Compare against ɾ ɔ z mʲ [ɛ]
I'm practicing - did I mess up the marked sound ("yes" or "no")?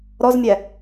no